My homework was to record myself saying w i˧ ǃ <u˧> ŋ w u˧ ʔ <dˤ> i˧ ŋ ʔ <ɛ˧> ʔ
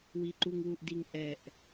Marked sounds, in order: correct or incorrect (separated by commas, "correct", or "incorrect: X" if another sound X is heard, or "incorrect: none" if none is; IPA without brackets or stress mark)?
correct, incorrect: d, correct